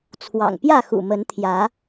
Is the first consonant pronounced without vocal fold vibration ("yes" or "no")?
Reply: yes